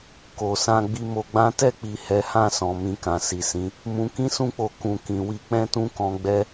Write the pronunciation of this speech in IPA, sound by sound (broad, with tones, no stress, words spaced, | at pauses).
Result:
ko˨sã˧ ɡ͡bi˧mo˧ɡ͡bã˦ tɛ˦˨k͡pi˨ hɛ˨˦hã˦˨sɔ̃˨ mĩ˧kã˨si˨sĩ˨˦ | mũ˧kĩ˦sũ˦k͡po˧ kũ˨ kĩ˨wi˧k͡pɛ̃˦tũ˦ kɔ̃˧ɡ͡bɛ˦